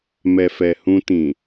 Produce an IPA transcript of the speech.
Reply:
mɛ˨fɛ˨hũ˧tĩ˨

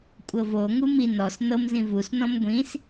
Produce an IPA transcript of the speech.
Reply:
kʷʼɤvo ŋumi nɔs nɤmzĩ vusnɔ̃m ɡʷĩs

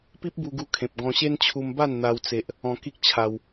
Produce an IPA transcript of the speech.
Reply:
pi˦p̚bu˧ɡu˧kʰẽ˨p̚ ɡɔ̃˧ɕe˦n t͡ɕʰu˧mba˥˧n n̪a˦wt͡se˦ʔ | ɔ̃˧ki˦k̚t͡ɕʰa˧w

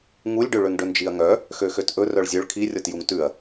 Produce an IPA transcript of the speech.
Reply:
ŋulʲɖøɭøŋ ɖɵnd͡ʒiɐ̯ŋœ | xøxøtʔɵ rœɭzʲœɭ kʰirʲɔt juŋtʉɐ̯

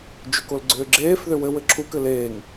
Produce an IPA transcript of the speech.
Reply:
d͡ʒʏkol ɡ͡ǀʏːɡ͡ǁeːfðʏ wɘ wɘǁʰukɘ leːŋ

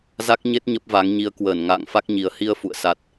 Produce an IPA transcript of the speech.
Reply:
za˦˥k̚ ɲe˦˥t̚ ɲə˦˥p̚va˨˦ŋɲi˧ə̯ kwəː˧˩nŋa̰ː˧˨ŋfa˦˥k̚ɲi˨˩ə̯ hi˧ə̯fṵ˧˨ə̯ sa˨˩t̚

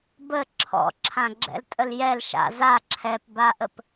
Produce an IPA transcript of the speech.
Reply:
bə ǁʰɔ̰ ǁʰãɡ͡ǁɛ̰ltʼəljɛl ʃa̰ za ǁʰɛpbaʔəp

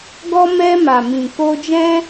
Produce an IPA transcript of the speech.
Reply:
ɡɔ˧mɛ˧ma˨mĩ˨ ko˧d͡ʒɛ̃˦

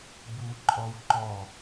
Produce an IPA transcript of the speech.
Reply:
buǃʼɔwǃɔ

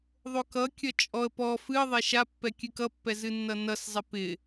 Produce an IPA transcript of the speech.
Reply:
ðˤokʌkʲʌ t͡ʃʼɔə̯ pɔ fɨə̯ ðˤɛʃapːɛ kʲɨkʌpːɛ zɨnːʌnʌszˤɛ pɪ

